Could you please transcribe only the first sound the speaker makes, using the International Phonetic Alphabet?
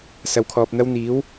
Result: s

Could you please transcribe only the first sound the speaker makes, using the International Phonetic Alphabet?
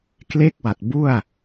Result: k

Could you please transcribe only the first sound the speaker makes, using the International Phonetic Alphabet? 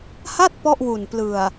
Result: h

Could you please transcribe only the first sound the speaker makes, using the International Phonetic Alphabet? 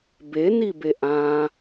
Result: b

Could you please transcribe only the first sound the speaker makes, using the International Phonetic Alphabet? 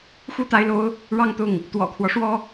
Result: x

